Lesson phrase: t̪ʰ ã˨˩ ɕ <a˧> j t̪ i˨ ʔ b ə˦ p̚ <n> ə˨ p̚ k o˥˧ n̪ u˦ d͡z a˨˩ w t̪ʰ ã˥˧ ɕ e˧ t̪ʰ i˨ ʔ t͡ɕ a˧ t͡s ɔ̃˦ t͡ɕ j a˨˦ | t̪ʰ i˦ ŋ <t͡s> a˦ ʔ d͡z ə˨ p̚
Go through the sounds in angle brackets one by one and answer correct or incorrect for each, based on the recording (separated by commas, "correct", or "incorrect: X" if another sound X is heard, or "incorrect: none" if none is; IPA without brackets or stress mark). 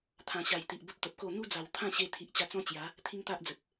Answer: incorrect: a˨˩, incorrect: t̪, incorrect: t̪